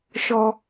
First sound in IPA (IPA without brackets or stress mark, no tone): ʃ